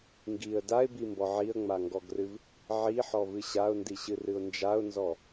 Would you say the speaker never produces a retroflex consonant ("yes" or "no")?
yes